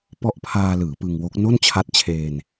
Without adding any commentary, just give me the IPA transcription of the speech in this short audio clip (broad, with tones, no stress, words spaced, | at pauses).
pɔ˦˥ʔpʰaː˧lɯː˩˦ pɯ˧ŋwo˦˥k̚ no˥˩nt͡ɕʰa˦˥t̚t͡ɕʰeː˧n